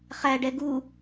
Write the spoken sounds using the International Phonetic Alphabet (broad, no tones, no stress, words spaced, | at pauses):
χæɖɛ ɡu